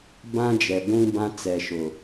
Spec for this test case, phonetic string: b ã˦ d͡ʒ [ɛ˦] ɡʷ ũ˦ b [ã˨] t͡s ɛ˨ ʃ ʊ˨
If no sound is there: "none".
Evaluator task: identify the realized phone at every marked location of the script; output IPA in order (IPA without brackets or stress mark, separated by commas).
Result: ɛ˨, ã˦